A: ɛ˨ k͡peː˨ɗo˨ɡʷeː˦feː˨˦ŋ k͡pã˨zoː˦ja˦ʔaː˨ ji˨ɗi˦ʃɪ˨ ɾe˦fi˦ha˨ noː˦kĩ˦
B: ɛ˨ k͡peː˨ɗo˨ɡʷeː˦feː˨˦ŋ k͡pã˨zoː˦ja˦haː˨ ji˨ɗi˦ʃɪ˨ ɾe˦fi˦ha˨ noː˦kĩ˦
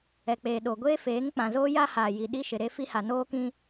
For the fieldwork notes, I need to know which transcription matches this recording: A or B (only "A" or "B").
B